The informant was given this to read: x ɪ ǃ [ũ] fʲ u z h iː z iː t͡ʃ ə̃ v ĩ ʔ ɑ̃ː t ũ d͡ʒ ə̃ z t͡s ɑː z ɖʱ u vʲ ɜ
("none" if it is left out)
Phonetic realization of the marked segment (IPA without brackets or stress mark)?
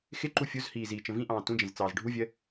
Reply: u